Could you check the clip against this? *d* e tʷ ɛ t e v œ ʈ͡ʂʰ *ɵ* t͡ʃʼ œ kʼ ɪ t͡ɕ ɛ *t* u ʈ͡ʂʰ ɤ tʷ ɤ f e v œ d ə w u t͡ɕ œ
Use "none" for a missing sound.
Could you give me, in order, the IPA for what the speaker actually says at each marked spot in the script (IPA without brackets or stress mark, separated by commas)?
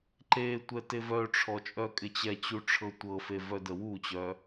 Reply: ǃ, ɔ, t͡ɕ